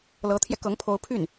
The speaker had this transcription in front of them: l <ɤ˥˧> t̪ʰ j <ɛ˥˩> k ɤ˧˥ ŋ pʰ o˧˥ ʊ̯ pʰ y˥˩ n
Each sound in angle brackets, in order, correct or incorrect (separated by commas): incorrect, incorrect